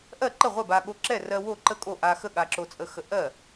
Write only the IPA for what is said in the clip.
ʔ ɜ˥˩ ǃ ə˥˩ ʁʷ ɛ˥˩ b a˧ ɠ o˧ ǁ ɛ˥˩ r ɜ˧ w o˥˩ ǃ ə˥˩ kʼ o˥˩ ʔ a˧ x ə˥˩ ɠ a˧ ǁ o˧ t͡sʼ ə˧ x ə˧ ʔ ɜ˥˩

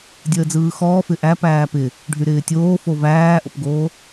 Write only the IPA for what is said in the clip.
dʲ əː d͡z ɯː x ɔː f ɪ ʔ æ p æː p ɪ | ɖʱ y ɾ ɪː tʲ oː f o v æː ʔ o̰ p ɡ oː

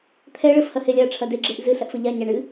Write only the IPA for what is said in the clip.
t̪ʰ ɛ ɭ ɘ f h ɐ h e lʲ a ɐ̯ ʈ͡ʂʰ ɐ d e ɡ͡ǁ e ʔ z ɨ ɬ ɐ ʔ f ɘ ʎ a ɲ a ɳ ɨ

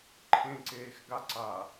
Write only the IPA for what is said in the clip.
ǃʰ ẽ ǀ eː x ɡ a ǀ a

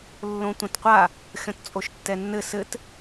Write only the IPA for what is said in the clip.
lː õ tʷ ɐ̃ t qʷ a | xʲ ɔ̃ t t͡sʼ o ʃ tː ɛ nː ɘ s ɘ t

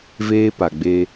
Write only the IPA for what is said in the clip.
v eː˦ p a˨ ɡ͡b e˦

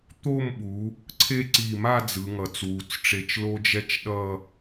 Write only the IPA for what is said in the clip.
t̪ o˥˧ m ɓ u˩˧ | ǀʰ e˥˧ ǀ i˧˩ m a˥˧ d͡z ɯ˩˧ ŋ ʌ˩˧ t͡s w u˩˧ t͡s ʈ͡ʂ e˧ t͡ʃ l o˥ d͡ʒ ɛ˥ t͡ʃ ɗ ʌ˥˧

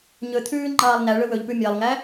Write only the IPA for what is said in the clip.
ɲ ɵ t̪ʰ ʉː ŋ͡ǃ ɑː lˠ n æ ɭ ɵ w ɵ ʎ p ʉ mʲ æ lˠ ŋ æ

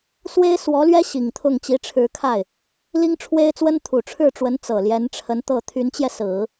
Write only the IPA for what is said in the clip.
s w e˥ ɪ̯ s w ɔ˧˥ l ɥ ɛ˥ ɕ i˨˩ ŋ t̪ʰ ʊ˥˩ ŋ t͡ɕ i˧˥ ʈ͡ʂʰ ɻ̩˧˥ kʰ a˥˩ ɪ̯ | l i˥ ŋ ʈ͡ʂʰ w e˥ ɪ̯ t͡s w ə˥ n t̪ʰ u˨˩ ʈ͡ʂʰ ɻ̩˥˩ ʈ͡ʂ w ə˧˥ n t͡s ɤ˨˩ l j ɛ˧˥ n ʈ͡ʂʰ ə˧˥ n t̪ ɤ˥˩ t̪ʰ y˧˥ n t͡ɕ j ɛ˧ s ɹ̩˨˩˦

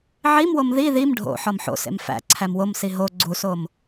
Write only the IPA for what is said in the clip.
ʕ i m w o m ð i ð i m ɖʱ o̰ ħ ɒ m ħ o̰ s ḛ m f æ̰ ǀʰ æ m w o m s i ɦ o ɡ͡ǀ u s o m

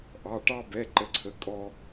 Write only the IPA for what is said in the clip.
ʔ ɑ˩˧˩ ʈ ɑ˧ b ɛ˩˧˩ ǃ ə˩˧˩ ǀʰ ə˩˧˩ kʼ ɔ˧

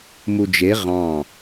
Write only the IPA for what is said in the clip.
m u d͡ʒ e ʁ ɑ̃

